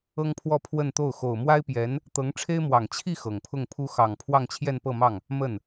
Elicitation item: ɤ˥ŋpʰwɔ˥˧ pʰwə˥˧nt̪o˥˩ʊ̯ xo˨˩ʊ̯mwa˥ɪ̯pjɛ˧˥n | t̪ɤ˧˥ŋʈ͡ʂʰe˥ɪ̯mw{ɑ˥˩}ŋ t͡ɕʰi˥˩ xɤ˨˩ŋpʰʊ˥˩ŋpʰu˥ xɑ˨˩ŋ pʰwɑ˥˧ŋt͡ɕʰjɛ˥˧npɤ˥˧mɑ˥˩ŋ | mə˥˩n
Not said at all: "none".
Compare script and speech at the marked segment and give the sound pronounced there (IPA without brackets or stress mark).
ɑ˨˩